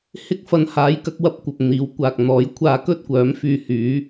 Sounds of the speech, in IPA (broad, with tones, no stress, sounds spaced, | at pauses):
h ɪ˥ k̚ f ɐ˨˥ n h aː˨˥ j k ɐ˨˥ k̚ w ɐ˧ p̚ kʷ ɐ˨ p̚ n̪ iː˨˥ w kʷ aː˨ k̚ n̪ ɔː˨˥ j kʷʰ aː˧ k ɵ˥ t̚ kʷ œː˨˥ m f yː˧ h yː˨˥